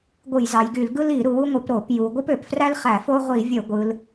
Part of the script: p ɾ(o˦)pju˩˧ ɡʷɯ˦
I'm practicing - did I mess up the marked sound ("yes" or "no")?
yes